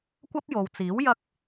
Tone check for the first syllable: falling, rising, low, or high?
high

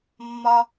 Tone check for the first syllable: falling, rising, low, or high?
high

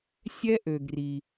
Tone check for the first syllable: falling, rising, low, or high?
high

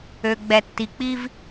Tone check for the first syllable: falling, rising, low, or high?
low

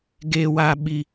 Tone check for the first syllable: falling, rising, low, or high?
high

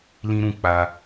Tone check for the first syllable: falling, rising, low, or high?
high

